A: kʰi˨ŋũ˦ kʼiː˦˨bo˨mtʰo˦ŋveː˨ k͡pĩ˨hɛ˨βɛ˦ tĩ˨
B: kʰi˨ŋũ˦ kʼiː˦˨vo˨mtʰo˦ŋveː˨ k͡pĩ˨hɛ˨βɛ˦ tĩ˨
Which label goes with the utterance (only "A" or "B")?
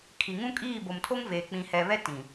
A